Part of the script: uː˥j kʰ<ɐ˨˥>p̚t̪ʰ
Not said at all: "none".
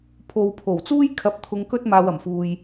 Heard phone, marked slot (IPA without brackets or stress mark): ɐ˧